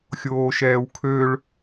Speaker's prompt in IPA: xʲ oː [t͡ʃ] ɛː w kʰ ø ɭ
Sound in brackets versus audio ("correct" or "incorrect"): incorrect